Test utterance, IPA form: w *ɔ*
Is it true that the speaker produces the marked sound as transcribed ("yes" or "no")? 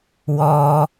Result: yes